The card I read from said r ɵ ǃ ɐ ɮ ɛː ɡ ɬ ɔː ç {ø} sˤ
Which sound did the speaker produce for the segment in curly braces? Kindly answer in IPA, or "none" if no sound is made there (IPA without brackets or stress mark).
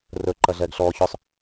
ɵ